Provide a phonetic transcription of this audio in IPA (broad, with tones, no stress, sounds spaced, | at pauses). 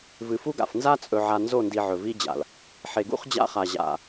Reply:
v ɨ˨ f u˦ ɡ a̰˨ f n z a˦ t͡sʼ ɵ˨ ʕ a˨ n z o˦˨ n d i˨ ʕ ɵ˨ v i˦ d͡ʑ a̰˨ l | ħ e˨ ɡ ṵ˦ χ d͡ʑ a̰˦ χ a˨ ʑ a̰˨